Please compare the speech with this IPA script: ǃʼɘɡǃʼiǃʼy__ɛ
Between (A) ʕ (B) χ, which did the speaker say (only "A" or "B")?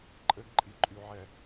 A